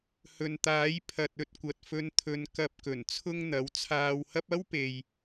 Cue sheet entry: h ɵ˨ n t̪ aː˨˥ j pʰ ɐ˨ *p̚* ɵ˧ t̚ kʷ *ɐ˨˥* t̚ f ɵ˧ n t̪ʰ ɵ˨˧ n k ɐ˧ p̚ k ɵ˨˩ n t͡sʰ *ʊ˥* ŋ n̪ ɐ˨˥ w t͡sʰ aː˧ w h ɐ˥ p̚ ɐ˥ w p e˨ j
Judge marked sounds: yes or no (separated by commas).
no, no, yes